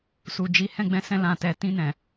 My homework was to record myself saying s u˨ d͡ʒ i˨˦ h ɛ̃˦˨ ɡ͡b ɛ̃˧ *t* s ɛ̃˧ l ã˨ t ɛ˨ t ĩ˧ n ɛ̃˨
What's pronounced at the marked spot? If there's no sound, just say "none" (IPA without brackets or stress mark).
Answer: none